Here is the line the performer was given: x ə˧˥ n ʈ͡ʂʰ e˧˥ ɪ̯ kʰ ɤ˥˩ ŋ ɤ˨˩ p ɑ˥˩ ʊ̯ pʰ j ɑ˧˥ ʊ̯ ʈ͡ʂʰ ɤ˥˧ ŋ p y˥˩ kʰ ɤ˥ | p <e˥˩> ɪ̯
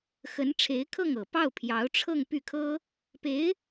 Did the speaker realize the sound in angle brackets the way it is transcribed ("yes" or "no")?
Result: no